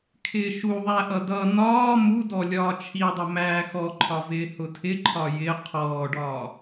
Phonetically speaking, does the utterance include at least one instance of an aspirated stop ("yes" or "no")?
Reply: yes